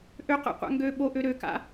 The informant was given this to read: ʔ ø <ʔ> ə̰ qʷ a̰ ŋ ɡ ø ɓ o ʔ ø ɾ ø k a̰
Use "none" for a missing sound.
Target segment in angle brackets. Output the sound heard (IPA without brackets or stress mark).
q